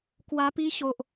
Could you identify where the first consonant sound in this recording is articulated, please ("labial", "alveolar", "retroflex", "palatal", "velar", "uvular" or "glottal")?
velar